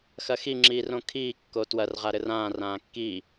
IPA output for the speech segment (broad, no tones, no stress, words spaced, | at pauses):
xɐxi ŋ͡ǁiːrõkʰiː kːotwɐrʁa ɾɘrãː rãːkːiː